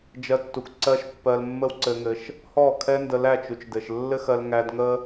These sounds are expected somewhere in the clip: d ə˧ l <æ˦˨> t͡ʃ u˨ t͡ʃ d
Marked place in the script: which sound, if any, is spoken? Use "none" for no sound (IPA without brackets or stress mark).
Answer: æ˦˨